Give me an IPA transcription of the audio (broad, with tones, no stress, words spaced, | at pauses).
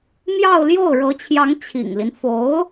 mjɑ˥˧ʊ̯ ljo˥˩ʊ̯ɻɤ˧˥t͡ɕʰjɑ˧˥ŋ t͡ɕʰḭ˨˩ŋli˦n fo˧˥ʊ̯